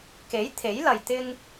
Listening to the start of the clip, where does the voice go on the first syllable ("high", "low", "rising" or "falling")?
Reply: rising